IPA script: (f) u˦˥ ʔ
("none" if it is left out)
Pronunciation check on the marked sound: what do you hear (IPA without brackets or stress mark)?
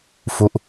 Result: f